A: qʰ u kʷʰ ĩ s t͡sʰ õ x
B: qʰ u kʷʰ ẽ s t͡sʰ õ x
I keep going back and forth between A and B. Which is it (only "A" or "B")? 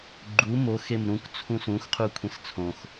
B